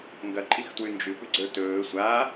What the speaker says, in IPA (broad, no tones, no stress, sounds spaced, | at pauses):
ŋ ɡ ɐ ǃʼ i x t w ʉ n d͡ʒ ʉ p ʉ ɡ͡ǀ ə˞ t ɵː sʷ a